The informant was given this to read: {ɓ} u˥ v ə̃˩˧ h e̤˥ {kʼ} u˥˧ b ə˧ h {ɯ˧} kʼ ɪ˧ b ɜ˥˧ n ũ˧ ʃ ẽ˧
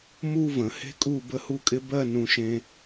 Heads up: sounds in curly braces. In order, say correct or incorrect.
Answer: incorrect, correct, incorrect

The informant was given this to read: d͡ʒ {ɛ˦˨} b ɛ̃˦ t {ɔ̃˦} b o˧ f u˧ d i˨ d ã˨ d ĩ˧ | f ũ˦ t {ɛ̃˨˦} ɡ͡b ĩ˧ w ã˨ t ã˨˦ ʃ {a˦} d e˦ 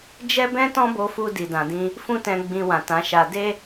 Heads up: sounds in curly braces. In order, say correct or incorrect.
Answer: incorrect, correct, incorrect, incorrect

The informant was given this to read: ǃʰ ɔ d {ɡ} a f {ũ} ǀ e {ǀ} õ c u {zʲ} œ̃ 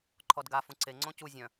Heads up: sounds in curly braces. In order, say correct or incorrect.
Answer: correct, correct, incorrect, correct

